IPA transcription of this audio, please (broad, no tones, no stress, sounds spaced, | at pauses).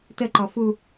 t ə ǃ ɔ f u